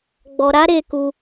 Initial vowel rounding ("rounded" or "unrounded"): rounded